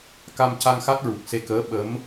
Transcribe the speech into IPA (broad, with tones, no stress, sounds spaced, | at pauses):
k a˧ m c a˧ ŋ x a˦˥ t̚ ɹ u˨˩ k̚ s e˧ k əː˧˥ ɓ ə˧˥ m